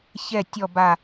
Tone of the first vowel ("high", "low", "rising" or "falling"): falling